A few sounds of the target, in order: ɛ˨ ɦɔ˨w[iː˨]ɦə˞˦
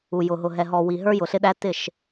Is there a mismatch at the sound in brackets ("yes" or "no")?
yes